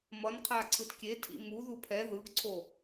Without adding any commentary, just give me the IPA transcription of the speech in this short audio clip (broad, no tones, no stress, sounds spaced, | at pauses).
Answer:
m ʌ n qʰ a ǀʰ ɯ t kʲ e tʰ ḭ m u ð u pʰ ɛ ð ɯ ɡ ǀʰ o